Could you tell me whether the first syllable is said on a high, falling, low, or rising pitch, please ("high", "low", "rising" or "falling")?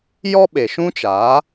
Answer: high